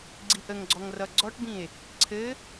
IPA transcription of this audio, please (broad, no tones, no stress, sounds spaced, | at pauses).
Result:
ɡ͡ǀ i ʔ ə ŋ ɡ͡ǀ ɔ ŋ r ʌ ɡ͡ǀ ɔ ʈ b ĩ e̯ | ǀʰ ɘ